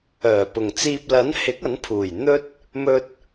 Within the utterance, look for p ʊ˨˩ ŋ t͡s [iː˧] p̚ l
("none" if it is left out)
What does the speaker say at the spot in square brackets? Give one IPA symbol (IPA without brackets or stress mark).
iː˧